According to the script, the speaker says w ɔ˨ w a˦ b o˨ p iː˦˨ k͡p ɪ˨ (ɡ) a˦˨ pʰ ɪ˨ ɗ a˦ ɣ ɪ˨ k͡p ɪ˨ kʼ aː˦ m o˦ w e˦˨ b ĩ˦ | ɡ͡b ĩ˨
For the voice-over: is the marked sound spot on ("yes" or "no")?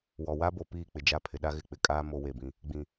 no